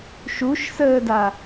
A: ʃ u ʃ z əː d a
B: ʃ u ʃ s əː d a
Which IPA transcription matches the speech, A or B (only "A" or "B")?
B